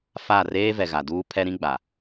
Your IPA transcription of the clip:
fa˦˨ reː˦vɛ˨ ɣa˨duː˦ pʰɛ˦ɾĩ˦ ɡ͡ba˨

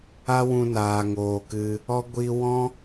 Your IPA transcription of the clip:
a˧wũ˨ naː˨ŋoː˨kɨ˧ | ɔ˧ ɡʷiː˧wɔ̃˦

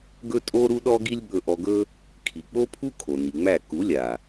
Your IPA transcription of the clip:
ɡɵ˦ tʼo˦ ɾu˦ɗɔ˦ɡi˦lʲɓɵ˧ ʔɔ˧ɡɵ˦ | kʰi˨k͡po˦pʰu˦ kʰo˨ni˨ŋ͡mæ˦˨ ku˨˦lʲa˨

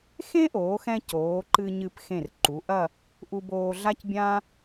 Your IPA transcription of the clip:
xẽ˥ʔoː˩˧xɛ̃˧ coː˩˧ǃɨ˧ɲɨ˧p xẽ˧˩rǃu˩˧ʔɐ˥˧ | ʔu˧boː˧ɮa˥cbʲã˥

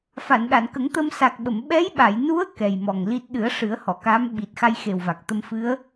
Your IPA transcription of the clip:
fa˨˩˨nɗa˨˩˨nkə˨˩˦ŋt̪ə˧m sa˨˩k̚ɓə˨˩˨m ɓɛ˧˥jɓa˨˩˨j nu˧˥ə̯ kɛ˨˩jmɔ˨˩ŋli˦˥t̚ ɗɨ˨˩˦ə̯ ʂɨ˨˩˦ə̯hɔ˨˩˨kaː˧˥m ɓi˨˩t̚ xa˧jxe˨˩wva˨˩k̚ t̪ə˧mfɨ˧˥ə̯

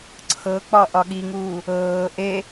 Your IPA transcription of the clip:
ǀʰɤk͡pɒ ʔɒɠiŋuː | ɤː ʔe

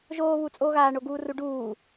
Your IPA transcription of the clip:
ʒoː βut͡sʼoːɣaː ɳoɡuːruɖuː

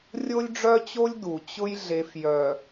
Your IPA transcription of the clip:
rʲo˦lʲɖ͡ʐœ˦t͡ɕo˦lʲ du˨t͡ɕʊ˦j ɮe˨fjœ˨

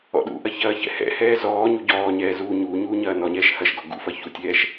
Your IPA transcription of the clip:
ɔ̰ɗṵʔɐ çɐːçɛ̰hɛ̰hɛː zɔːɲu ɟɔːɲɛː zuː ɲuːɲuː ɲɐːnɔɲɛːʃ hɐʃɡɔ ɡṵfɐ çutʲɛːʃ

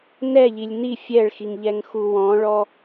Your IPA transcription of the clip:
nɛʎilʲ ni fʲɛɭxiŋʎɛŋxu wɔ̃ɭɔ

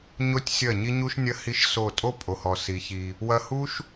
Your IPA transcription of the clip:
ɲo˦tʲsʲɐ˦˨ ɲi˦ɲu˦ʃnʲɐ˦ hi˦ʃso˦˨ tʼo˦pʼo˨hɔ˨si˨ çi˧ | wɐ˧hu˦ʃ

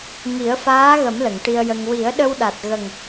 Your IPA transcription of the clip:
ŋi˨˩˦ə̯faː˧˥ɣə˨˩˦m lə˨˩˨ŋʈi˧ə̯jə˧ŋ wi˨˩˦ə̯ɗə˧w ɗa˨˩t̚ɣə˨˩ŋ

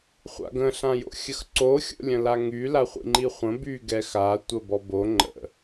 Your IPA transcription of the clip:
χʷa̰ɡə̃ ɬãjo̰xʲəxǀo xʲo̰lʲə̃laŋy laχʷḭŋ͡ǃiχʷə̃ by ɡɛxa tʷəbɔbo ŋ͡ǃə̰

